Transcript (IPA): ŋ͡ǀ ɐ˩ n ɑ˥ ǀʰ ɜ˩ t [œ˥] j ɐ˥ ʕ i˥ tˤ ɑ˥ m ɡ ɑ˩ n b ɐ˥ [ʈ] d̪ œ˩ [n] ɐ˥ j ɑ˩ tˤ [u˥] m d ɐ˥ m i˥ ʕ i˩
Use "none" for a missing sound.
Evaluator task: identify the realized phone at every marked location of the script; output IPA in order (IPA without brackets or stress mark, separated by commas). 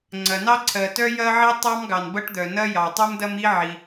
œ˥, ʈ, n, u˥